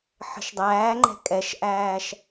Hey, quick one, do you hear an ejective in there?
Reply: yes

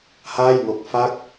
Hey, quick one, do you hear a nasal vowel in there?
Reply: no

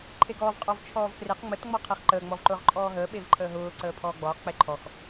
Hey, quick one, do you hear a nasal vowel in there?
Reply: no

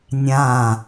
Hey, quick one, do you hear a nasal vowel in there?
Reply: yes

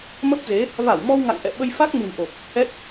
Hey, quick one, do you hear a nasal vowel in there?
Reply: no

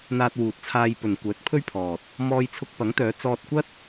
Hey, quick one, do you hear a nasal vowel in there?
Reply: no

